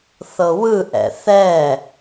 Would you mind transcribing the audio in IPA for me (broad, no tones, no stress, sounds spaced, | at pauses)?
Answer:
θ ɤ w ɯ ʔ ɛ̰ θ ɛ